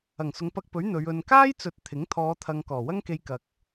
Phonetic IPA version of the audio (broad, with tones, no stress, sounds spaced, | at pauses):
ɐ˨˩ ŋ s ʊ˨˧ ŋ p ɐ˧ k̚ p ɵ˨˥ ɥ n̪ ɵ˨˧ ɥ ɵ˧ n k aː˥ j t͡s ɵ˨ t̚ t̪ʰ ɪ˨˥ ŋ t̪ʰ ɔː˨˧ t̪ʰ ɐ˨ ŋ k ɔː˨˩ w ɐ˥ ŋ k e˧ j k ɐ˨ k̚